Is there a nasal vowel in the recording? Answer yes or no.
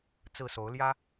no